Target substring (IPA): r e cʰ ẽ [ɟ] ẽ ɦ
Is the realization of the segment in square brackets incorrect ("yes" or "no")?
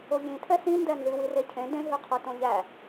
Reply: yes